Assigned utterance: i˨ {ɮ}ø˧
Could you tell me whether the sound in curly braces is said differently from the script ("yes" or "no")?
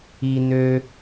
yes